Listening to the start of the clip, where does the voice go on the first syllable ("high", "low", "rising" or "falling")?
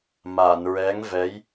low